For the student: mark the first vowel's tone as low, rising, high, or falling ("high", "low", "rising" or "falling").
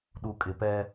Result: low